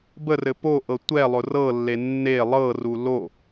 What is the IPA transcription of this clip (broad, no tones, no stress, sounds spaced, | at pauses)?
b ə r ɘ p o ʔ ɤ tʷ ɛ lˠ ʊ r ɤ lː e nː e lˠ ɤ r u l o